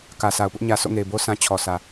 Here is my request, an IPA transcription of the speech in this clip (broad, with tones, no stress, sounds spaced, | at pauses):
k ä˨ s a˨ ʊ̯ p ʊ˦ ʔ ɲ ä˨ s o̰˦˨ ŋ e˨ ɪ̯ b o˦ s ã˦ t͡ɕʰ ɔ˨ s ä˨